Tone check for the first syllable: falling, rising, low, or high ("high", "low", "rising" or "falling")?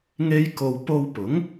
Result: high